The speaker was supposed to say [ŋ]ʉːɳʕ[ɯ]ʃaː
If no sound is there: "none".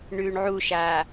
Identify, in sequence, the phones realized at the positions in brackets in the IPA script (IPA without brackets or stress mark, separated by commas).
ɳ, u